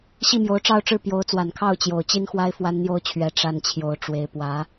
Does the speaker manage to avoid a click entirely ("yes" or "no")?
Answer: yes